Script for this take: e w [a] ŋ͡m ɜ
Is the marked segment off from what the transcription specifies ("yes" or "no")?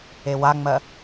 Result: no